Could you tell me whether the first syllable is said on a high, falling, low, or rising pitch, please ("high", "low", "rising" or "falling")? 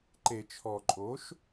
low